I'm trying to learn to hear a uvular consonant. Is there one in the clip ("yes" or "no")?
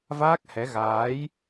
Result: no